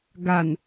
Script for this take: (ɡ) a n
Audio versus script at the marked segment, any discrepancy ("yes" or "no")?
no